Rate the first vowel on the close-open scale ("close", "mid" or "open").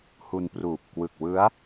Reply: close